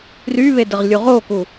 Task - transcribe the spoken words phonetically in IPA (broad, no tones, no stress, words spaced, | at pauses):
ryβe dəʁlʲuʁoku